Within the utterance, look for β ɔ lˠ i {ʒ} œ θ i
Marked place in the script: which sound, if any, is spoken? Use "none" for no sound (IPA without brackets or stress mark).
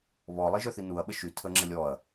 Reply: ʒ